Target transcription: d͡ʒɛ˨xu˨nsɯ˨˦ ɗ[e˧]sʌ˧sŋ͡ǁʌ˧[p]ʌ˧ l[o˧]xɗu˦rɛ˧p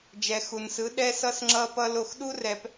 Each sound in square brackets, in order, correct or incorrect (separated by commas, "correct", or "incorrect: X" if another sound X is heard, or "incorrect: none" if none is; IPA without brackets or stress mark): incorrect: ɛ˧, correct, correct